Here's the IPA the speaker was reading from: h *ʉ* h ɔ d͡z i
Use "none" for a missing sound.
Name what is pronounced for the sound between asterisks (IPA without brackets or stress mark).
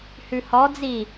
ʉ